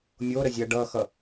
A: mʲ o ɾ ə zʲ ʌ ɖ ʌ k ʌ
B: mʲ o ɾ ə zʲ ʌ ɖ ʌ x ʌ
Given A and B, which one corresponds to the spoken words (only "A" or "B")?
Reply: B